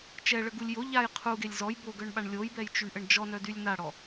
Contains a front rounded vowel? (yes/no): yes